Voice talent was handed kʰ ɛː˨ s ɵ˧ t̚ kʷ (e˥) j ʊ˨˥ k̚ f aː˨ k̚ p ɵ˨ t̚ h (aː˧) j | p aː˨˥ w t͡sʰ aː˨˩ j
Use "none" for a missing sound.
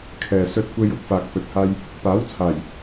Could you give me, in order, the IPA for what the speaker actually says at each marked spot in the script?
e˧, aː˧

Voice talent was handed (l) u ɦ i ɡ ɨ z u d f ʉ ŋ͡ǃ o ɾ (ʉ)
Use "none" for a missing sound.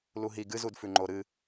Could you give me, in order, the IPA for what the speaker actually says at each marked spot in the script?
l, ɨ

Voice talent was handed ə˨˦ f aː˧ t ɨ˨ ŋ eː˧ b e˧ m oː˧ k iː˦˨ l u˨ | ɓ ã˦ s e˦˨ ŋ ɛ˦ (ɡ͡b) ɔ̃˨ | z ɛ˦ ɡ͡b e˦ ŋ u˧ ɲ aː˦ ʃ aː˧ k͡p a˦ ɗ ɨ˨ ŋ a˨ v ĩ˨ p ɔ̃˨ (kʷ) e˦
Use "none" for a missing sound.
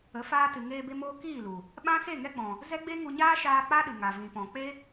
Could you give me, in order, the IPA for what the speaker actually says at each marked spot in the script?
ɡ͡b, k͡p

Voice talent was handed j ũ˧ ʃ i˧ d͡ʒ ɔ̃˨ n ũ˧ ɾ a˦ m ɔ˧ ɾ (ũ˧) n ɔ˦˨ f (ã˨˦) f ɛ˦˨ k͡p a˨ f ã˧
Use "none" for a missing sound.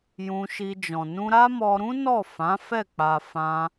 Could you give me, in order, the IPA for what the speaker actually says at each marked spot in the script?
ũ˦, ã˨˦

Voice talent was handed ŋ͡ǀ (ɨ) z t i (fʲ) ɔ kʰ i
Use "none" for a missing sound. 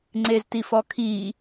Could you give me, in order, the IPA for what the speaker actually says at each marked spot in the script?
e, f

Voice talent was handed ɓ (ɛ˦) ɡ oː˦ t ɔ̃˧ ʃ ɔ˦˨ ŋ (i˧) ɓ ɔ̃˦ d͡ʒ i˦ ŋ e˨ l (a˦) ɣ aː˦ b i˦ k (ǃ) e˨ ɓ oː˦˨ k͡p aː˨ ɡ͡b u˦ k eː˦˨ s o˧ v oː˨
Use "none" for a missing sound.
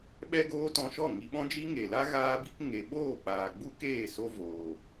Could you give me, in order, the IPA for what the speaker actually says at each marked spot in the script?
ɛ˦, i˧, a˦, ŋ

